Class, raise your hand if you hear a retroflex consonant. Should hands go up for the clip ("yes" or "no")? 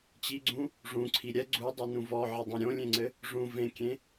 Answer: yes